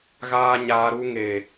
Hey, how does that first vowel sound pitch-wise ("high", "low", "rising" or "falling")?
high